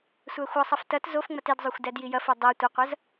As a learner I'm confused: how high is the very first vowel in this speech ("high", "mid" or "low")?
low